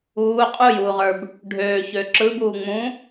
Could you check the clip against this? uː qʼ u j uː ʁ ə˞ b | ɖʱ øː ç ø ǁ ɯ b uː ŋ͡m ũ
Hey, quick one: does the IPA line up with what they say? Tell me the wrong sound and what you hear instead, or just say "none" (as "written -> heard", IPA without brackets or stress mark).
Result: none